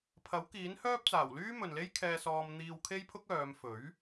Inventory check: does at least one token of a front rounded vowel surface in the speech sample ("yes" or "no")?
yes